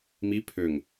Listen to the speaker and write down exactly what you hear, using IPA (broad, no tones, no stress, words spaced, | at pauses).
mi pʰøŋ